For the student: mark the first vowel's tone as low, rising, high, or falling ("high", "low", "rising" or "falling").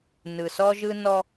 low